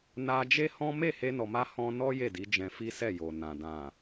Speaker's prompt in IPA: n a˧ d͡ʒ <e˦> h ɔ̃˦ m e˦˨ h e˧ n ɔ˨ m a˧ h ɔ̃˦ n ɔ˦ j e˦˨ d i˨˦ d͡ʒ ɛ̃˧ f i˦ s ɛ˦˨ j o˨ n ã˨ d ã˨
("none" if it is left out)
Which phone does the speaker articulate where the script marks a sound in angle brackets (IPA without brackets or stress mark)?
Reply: e˦